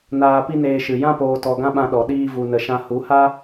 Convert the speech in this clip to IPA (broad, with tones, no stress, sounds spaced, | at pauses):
n aː˧ p i˦ n eː˧ ʃ ɨ˨ j ã˧ p oː˨ t ɔ˨ ɡ ã˦ ɓ ã˧ ɗ ɔ˨ ɗ iː˦ v u˧ n ə˧ ʃ ã˦ h u˨˦ h a˦